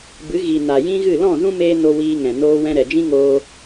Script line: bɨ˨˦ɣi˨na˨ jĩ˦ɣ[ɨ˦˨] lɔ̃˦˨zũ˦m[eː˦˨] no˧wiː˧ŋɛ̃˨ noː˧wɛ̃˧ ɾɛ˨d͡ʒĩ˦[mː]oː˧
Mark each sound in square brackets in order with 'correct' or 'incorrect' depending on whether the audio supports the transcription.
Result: correct, incorrect, incorrect

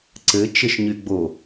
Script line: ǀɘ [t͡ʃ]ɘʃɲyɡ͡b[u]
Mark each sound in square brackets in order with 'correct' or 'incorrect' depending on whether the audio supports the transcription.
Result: correct, incorrect

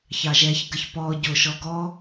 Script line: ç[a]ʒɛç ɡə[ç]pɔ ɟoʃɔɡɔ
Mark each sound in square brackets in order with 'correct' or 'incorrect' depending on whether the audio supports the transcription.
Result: incorrect, correct

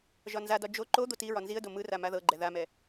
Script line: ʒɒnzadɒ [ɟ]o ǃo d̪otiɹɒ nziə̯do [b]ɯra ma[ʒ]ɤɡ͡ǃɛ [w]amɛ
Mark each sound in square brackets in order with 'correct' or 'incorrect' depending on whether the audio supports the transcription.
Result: incorrect, incorrect, incorrect, incorrect

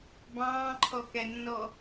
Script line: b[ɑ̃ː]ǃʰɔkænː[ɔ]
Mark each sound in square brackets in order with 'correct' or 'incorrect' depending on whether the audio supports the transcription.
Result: correct, correct

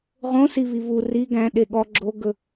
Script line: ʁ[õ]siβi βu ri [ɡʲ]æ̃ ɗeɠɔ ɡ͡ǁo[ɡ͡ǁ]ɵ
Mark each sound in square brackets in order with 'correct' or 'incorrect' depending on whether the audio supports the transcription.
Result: correct, incorrect, incorrect

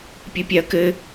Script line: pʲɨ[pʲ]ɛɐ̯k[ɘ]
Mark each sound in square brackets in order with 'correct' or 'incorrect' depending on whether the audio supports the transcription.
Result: correct, correct

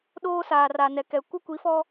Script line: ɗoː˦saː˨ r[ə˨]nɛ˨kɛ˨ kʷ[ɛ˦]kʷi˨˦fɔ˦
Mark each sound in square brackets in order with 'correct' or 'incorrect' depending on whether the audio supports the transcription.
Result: incorrect, incorrect

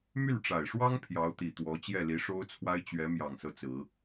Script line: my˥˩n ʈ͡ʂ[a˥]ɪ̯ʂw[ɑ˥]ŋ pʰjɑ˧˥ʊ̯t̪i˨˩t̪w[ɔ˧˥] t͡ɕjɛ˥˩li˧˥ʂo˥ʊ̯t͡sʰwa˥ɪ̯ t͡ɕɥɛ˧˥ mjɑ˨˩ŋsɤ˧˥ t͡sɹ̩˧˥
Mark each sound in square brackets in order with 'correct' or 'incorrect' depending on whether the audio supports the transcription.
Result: incorrect, correct, correct

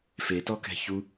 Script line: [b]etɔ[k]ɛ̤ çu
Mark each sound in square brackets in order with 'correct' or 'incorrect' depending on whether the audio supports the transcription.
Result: incorrect, correct

